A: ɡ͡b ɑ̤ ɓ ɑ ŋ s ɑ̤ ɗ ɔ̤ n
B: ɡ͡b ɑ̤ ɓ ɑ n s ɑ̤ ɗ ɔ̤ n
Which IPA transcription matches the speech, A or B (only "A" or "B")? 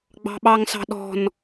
A